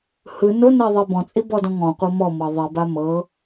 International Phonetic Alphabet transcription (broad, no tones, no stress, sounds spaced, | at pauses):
h ɯ n o n ɛ ðˤ e b ɔ̃ t͡sʼ i b ɔ d ɔ̃ ŋ ɔ̃ qʷ ɤ m ɔ m ɤ ðˤ i b a m ɤ